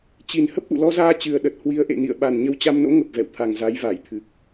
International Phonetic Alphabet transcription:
t͡ɕi˨˩n hə˦˥p̚ʔṵ˧˨ lɔ˧zaː˧ t͡ɕɨ˨˩ə̯ɗə˨˩t̚ hwi˨˦ə̯ʔḛ˧˨nḭ˧˨ə̯ ɓa˨˩n ɲə˧wt͡ɕa˧mno̰˧˥ ŋə˨˩p̚vɛ̰˧˨wt̪ʰa˨˩ŋ za˨˦jva˧˩jt̪ʰɨ˨˩k̚

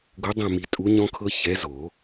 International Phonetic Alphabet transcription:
ɡu˨˥dˤɛ̃˦˨mi˨˩˦ tʼu˨˥ɲɔ̃˦˥kʰɤ˦˥ çɛ˨˥zo˨˩˦

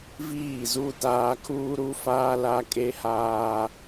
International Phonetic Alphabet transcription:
viː˦˨zu˦taː˦ kʰuː˦ɾu˦faː˦la˦ kʼe˦haː˦

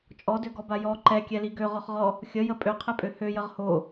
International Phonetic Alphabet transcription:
t͡ʃʼɔdøɡɔba jɔ ǃɛkʲɛli ɡøʁɔχʁɔ | xʲəjə pʼøqʰɛpʼø højəʁ ho

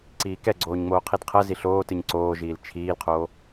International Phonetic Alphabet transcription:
ǀiːkɛ ɡ͡ǀoːɲŋ͡moːqʰidqʰɜ ziɬoːtɨɲ ǀoːʒiːl t͡ʃʰiːlqʰoː

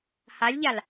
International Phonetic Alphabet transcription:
halʲʎal

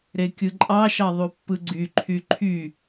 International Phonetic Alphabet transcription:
ɾekʲɯǃʼɑʃɑ ðˤupːɯɡ͡ǀyǃʰy ǃʰy

